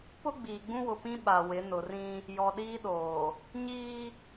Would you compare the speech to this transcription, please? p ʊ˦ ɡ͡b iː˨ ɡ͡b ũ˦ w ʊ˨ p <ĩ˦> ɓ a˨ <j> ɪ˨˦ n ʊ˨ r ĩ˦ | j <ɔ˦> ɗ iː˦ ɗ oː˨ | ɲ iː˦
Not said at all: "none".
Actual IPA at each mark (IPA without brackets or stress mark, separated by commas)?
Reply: ĩ˦, w, ɔ˨